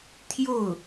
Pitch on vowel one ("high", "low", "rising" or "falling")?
falling